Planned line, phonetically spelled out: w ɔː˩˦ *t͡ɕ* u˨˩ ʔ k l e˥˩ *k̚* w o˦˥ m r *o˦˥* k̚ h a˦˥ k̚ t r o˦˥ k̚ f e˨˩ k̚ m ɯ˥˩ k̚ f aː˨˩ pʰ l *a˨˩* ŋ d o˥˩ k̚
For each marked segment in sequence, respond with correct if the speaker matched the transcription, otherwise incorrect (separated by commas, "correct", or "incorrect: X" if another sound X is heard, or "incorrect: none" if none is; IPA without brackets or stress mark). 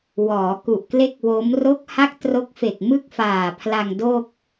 incorrect: k, correct, correct, incorrect: a˧